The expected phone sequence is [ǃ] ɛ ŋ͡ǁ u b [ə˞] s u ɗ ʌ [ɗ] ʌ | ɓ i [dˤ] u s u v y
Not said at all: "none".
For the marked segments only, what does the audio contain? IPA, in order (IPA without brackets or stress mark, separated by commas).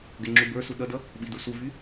ɡ, ə˞, d, d